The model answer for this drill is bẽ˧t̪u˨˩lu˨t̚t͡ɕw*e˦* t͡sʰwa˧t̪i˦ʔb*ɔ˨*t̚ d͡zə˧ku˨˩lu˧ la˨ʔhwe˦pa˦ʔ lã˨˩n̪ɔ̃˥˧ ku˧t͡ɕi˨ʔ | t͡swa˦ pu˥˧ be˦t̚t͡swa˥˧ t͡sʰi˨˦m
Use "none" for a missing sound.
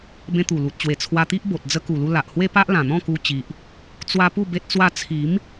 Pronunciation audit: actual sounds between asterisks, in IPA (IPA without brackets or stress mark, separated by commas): e˨˩, o˨